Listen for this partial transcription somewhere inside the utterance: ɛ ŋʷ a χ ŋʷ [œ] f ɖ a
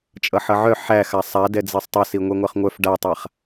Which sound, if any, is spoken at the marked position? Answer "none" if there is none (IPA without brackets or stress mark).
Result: œ